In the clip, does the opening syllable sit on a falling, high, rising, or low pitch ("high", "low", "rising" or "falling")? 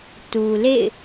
low